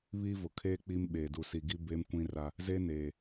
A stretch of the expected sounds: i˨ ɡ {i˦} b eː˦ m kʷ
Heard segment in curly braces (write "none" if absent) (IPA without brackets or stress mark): i˦